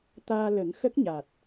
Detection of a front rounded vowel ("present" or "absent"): absent